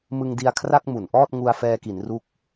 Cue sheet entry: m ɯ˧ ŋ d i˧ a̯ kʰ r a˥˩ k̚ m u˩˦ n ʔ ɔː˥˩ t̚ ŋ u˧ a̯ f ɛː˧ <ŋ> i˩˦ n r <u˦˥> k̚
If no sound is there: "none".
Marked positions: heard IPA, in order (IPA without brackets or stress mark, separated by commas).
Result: k, u˦˥